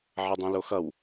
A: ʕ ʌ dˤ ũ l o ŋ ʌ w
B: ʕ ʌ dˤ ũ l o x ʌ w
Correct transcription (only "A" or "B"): B